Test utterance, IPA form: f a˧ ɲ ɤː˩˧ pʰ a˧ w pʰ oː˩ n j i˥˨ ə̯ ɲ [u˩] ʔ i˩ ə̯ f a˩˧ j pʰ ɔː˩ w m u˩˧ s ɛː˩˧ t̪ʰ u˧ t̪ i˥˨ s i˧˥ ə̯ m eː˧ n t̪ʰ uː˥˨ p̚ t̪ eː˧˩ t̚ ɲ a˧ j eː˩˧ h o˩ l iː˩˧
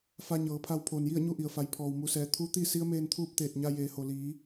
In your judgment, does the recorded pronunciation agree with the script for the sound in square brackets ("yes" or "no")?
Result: no